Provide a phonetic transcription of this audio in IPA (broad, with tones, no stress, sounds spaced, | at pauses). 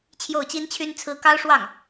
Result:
t͡ɕʰ j o˥˩ ʊ̯ t͡ɕ i˥ n t͡ɕʰ y˥ n t͡sʰ ɹ̩˥ k ɑ˥ ʊ̯ ʂ w ɑ˥˩ ŋ